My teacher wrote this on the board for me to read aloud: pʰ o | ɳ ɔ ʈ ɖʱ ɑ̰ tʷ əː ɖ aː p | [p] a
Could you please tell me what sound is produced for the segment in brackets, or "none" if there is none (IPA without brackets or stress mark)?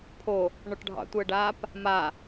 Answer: m